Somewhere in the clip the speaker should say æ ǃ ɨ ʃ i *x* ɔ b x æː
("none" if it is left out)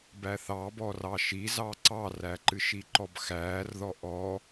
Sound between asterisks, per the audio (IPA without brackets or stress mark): ǃ